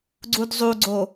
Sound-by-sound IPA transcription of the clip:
ɡ͡ǀ u d zˤ u ɡ͡ǀ o

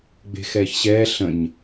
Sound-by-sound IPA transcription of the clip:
ɡ͡b e̤ x ɛː ç ɕ ɛː ɬ ə̃ ɲ

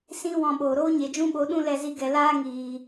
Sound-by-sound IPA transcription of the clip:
s ĩ˦ w ɔ̃˧ ɓ oː˨ ɾ oː˦ ɲ e˨ d͡ʒ ũ˦ ɓ o˨˦ ɗ ũ˦ l ɛ˧ z i˧ ɡ ɛ˨ l aː˦ ŋ iː˨

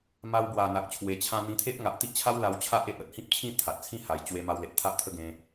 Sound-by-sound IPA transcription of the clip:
m a˧ w b w a˨˩ n̪ a˨ k̚ t͡ɕʰ w e˨˩ t͡ɕʰ ã˧ n̪ ĩ˧ t̪ʰ e˦ ʔ ŋ a˨ ʔ t̪ i˦ ʔ t͡ɕʰ a˦ w l a˧ w t͡ɕʰ a˦ ʔ e˨ ʔ ə˨ t̚ h ĩ˦ p̚ t͡ɕʰ ĩ˥˧ t̪ʰ a˨ t̚ t͡sʰ ĩ˦ h a˨˩ j t͡ɕ w e˧ m a˧ w l e˨ t̚ t̪ʰ a˦ ʔ t̪ʰ ə˦ ɡ ẽ˧

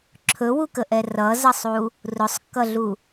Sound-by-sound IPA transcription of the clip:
ǁʰ ɵ w u k ə ʔ ɛ r ʌ z ʌ sˤ u | r ʊ sˤ kː ʌ ɮ u

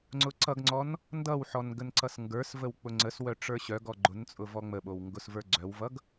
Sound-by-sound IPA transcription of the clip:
ŋ͡ǀ ʊ ǀ ʌ ɡ ŋ͡ǀ ɔ n | n d ʌ w ħ ɔ n ɡ ə n ǀ ʌ s ŋ ɡ ə˞ s v ə w k͡p ʊ ŋ͡ǀ ə s w œ ʈ͡ʂ ə˞ ɕ œ ɡ ɔ ɡ͡ǃ ʊ n t͡sʼ ʊ v ɔ ŋ͡m ə ɓ o w ŋ ɡ ʊ s v ə˞ ɡ͡ǀ œ w v ʌ ɡ

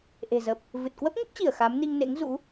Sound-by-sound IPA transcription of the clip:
ʔ e̤˨˩ z ə˨˩ p̚ | v ɨ˨˩ t̚ k w ə˦˥ p̚ ŋ ə˦˥ p̚ t͡ɕ i˧˩ ə̯ x a˨˦ m n i˧ ŋ n ḛ˧˥ ŋ z ṵ˧˥

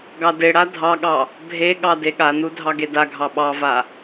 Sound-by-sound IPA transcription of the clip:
ɡ ɑ d e ɽ a dʱ ɑ ɠ ɑ | bʱ e ɠ ɑ d e ɠ a n u dʱ ɑ ɡ e d a ɡʱ ɑ ɓ ɑ v a

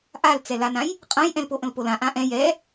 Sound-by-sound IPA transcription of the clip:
ʔ a l t͡s ɛ l a n ã j | qʼ ã j ʔ ɛ̃ l p o ʔ ə̃ l p o l ã ʔ ã ʔ ɛ̃ j ɛ

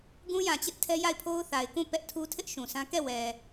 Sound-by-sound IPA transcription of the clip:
ɡ ũ˦ j ã˨ t͡ɕ ɪ˦ ʔ tʰ ɛ˦ j a˦˨ ɪ̯ pʰ o˦ ʊ̯ θ a˨ ɪ̯ k ũ˦˨ p ɛ˦ ʔ tʰ u˦ tʰ ɪ˦ ʔ ʃ ũ˨ s ã˦ k ɛ˦˨ w ɛ˨

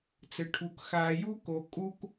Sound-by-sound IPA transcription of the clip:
t͡s ɘ˨ ʈʰ u˨ k x aː˨ j u˦ k o˨ kʼ u˦ k

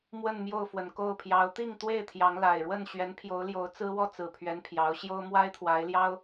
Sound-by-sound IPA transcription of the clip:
m w ə˥˨ n m j o˥˨ ʊ̯ f w ə˨˩ n k o˥˨ ʊ̯ pʰ j ɑ˨˦ ʊ̯ t̪ i˥˨ ŋ t̪ w e˥˨ ɪ̯ t̪ʰ j ɑ˨˦ ŋ l a˨˩ ɪ̯ ɻ w ə˥˨ n ɕ ɥ ɛ˨˦ n pʰ j o˨˦ ʊ̯ l j o˨˦ ʊ̯ t͡s ɹ̩˦ w ɔ˥˨ t͡s ɹ̩˨˩ pʰ ɥ ɛ˨˦ n pʰ j ɑ˨˦ ʊ̯ ɕ j o˦ ʊ̯ m w a˦ ɪ̯ t̪ʰ w a˨˦ ɪ̯ l j ɑ˦ ʊ̯

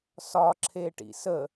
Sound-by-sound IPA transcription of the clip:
s ɒ ǁʰ e ʈ ḭ s ə

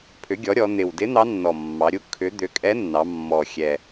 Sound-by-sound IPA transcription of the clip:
pʰ ʏ˩˥ ɡʲ ɔ˩˥ ɾʲ ɔ˩˧ n̪ ɪ˨˩ w d ɪ˧˥ n̪ ɑ˧˥ nː ɔ˨˩ mː ɑ˩˧ ɾʲ u˧˥ kʰ ʏ˩˥ d̪ ʏ˩˥ kʼ ɛ˧˥ nː ɑ˩˧ mː ɔ˨˩ xʲ ɛ˨˩

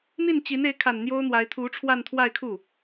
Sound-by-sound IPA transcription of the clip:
n̪ i˥˩ n t͡ɕ i˧˥ n e˧˥ ɪ̯ kʰ a˨˩ n n̪ j o˥ ʊ̯ n̪ w a˧˥ ɪ̯ t̪ʰ u˧˥ ʈ͡ʂʰ w a˥˧ n t̪ʰ w a˥˧ ɪ̯ kʰ u˥˩

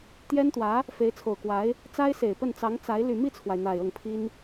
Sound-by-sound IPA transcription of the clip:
t̪ j ɛ˥ n t̪ w ä˧˥ | f e˧˥ ɪ̯ t͡sʰ o˨˩ ʊ̯ k w a˧˥ ɪ̯ | t͡s a˥ ɪ̯ s e˨˩ ɪ̯ p ə˥˩ n t͡s ɑ˧˥ ŋ t͡s a˧˥ ɪ̯ l y˨˩ m i˥˩ t͡sʰ w a˩ ɪ̯ n̪ a˨˩ ɪ̯ ɤ˥˩ ŋ pʰ i˥ n

